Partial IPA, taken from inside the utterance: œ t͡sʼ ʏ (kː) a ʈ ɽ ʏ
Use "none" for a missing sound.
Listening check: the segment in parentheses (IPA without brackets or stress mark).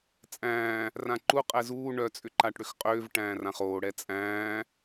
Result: ǃ